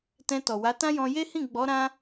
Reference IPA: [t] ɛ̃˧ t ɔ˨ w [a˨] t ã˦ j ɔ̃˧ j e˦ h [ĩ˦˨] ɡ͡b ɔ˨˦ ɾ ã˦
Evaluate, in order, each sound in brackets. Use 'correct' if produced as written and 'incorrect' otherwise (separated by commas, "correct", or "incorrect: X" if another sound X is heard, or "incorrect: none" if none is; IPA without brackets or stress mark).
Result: correct, incorrect: a˨˦, correct